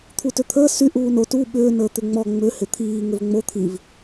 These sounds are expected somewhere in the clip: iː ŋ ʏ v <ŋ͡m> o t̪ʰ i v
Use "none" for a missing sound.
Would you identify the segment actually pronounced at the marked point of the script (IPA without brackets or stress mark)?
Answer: ŋ͡m